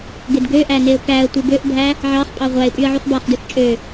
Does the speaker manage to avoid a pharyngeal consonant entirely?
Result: no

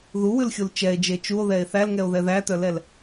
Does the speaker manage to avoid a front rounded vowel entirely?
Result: no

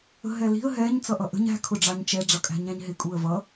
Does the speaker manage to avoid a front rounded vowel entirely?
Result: yes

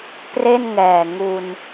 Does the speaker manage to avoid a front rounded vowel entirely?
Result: yes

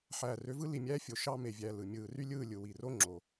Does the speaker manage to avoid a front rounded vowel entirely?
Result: no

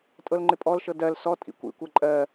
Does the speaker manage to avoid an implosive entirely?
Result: yes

